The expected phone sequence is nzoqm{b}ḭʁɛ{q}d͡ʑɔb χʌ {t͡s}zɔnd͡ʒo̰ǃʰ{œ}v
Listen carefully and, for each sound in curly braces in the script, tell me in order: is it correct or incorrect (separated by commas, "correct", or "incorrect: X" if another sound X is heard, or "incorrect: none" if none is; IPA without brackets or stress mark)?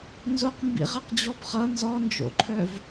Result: correct, correct, incorrect: n, correct